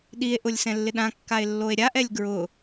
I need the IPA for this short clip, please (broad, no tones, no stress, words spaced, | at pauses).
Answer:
ɗie̯ʔʊlʲ sɛ̃lːɪɗãkːae̯ lːoe̯ɾʲaʔɛlʲ ɡɹʊ